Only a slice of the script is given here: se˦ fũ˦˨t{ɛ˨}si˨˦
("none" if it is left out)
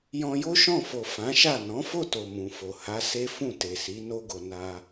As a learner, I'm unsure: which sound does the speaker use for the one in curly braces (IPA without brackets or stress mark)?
e˨